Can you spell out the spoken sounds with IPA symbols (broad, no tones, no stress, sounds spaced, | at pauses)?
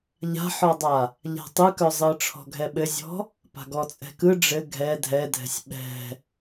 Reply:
ʎ a̤ ħ ɔ dˤ a | ʎ a̤ tˤ ɯ k œ zˤ ɯ ʈ͡ʂʰ ɔ̤ ɡʱ ɛ ɓ ɘ zʲ ɔ̤ | p a̤ ɡ ɔ t͡sʼ ɛ̤ k ɯ ɖ͡ʐ ɘ ɡʱ ɛ dʱ ɛ dʱ ɛ̤ sʲ ɓ ɛ̤